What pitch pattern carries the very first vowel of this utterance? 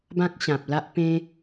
high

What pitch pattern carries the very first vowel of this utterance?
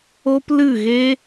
high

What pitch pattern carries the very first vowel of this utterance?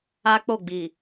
high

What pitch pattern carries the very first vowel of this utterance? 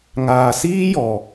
low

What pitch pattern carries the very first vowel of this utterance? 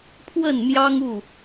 falling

